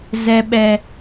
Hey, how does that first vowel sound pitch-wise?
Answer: high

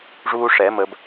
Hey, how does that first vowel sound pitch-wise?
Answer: high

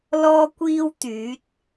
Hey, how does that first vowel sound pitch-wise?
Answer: high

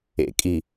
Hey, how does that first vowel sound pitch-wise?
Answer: low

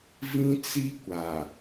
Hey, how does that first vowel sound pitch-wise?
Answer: high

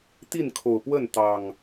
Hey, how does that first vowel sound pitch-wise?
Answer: falling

